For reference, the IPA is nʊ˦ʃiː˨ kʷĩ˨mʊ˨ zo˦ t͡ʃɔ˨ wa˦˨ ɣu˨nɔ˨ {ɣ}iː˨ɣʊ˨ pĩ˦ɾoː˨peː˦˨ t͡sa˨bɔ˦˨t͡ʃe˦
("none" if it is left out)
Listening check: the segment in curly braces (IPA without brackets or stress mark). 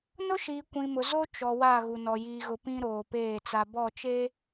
j